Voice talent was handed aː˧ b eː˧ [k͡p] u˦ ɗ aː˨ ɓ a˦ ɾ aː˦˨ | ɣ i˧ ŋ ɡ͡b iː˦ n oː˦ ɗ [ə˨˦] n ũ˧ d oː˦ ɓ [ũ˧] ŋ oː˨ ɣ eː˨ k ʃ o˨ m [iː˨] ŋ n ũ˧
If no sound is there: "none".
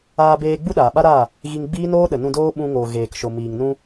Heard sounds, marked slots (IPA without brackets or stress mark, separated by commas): ɡ͡b, ə˨, ũ˧, iː˨